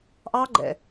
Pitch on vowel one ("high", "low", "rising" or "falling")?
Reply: high